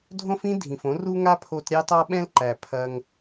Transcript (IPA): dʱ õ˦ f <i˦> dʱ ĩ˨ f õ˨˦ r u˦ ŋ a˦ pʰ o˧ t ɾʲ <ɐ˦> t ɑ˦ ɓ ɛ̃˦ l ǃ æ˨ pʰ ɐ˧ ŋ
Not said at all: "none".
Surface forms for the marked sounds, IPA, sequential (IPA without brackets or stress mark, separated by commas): ĩ˦, ɑ˦